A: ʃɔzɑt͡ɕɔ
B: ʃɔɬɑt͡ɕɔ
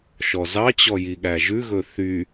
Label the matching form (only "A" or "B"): A